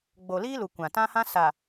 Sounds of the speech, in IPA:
ɡ͡bo˨liː˦lu˨ kʷã˨tã˦hã˦ sa˨

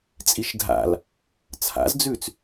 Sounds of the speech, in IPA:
t͡sʼiʃdʱa̰l | t͡sʰa̰zd͡zʉt͡s

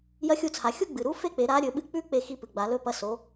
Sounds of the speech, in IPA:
jɐ˧˥xʲu˧t͡sʰa˩ xʲu˥ ɡ͡bɨ˩ɾu˧˥fe˥k͡pe˩˧ ɾa˧˥ ɾʲɵ˩˧ɓɨ˧k͡pʉ˥ k͡pe˧xi˧pɨ˩ ɡ͡ba˩˧lɵ˧˥pɐ˧˥ so˩˧

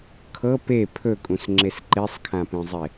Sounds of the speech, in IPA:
kʰɤ pe pʰɵkʼũsŋ͡ǁes ǃesˤkʰãpẽzˤe

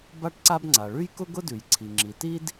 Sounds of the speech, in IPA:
ba˥ʈǀa˥bŋ͡ǀa˩ ɭʉ˥j kʊ˥ɡʊ˥dʉ˩jǀʰi˩ ŋ͡ǁi˩ti˥d

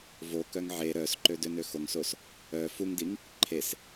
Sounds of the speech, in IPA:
vokœŋ ʕe ɾœsǃødønø xoŋsos | œ fuŋdiŋ | ǃʰes

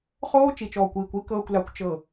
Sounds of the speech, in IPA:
χoː˦t͡ʃi˨t͡ʃɔː˨kʷiː˨kʷ i˦ kɤː˨kʷla˨kʷ t͡ʃɤ˦˨

